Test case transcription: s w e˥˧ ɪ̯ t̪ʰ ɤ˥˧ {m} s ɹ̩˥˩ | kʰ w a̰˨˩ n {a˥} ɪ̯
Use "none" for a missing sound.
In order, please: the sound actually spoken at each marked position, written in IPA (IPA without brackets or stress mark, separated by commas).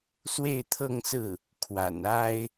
ŋ, a˥